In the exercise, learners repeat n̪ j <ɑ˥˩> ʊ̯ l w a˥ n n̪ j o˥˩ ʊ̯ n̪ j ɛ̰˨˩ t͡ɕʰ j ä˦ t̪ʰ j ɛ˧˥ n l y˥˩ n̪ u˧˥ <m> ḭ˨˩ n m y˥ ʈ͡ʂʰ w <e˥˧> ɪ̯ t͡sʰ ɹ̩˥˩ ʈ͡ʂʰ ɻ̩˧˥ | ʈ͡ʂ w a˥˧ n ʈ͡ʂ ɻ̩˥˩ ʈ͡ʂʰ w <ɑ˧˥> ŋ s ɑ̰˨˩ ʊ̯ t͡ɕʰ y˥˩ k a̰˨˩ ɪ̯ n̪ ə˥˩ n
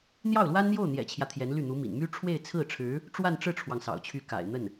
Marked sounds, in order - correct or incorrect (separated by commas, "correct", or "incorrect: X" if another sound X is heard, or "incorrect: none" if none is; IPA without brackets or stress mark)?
correct, correct, correct, incorrect: ɑ˩